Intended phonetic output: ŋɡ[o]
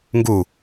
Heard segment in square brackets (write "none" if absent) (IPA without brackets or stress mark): u